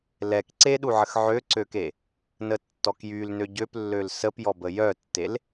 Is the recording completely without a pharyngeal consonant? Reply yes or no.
no